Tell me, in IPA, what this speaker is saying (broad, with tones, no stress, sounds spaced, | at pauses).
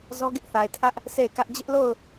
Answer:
z ɔ˦ ɡ ɪ˦ ʔ θ a˨ ɪ̯ tʰ ä˦ ʔ | s e˦˨ ɪ̯ k ä˦ ʔ d͡ʑ ɪ˦ ʔ l o˦˨ ʊ̯